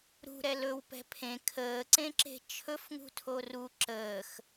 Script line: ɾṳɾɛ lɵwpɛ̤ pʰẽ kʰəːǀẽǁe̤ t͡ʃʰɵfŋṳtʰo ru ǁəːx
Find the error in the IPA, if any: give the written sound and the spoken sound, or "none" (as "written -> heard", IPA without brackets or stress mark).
none